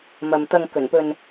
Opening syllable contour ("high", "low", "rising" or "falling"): low